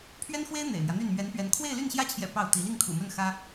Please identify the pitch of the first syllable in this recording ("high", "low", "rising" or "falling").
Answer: high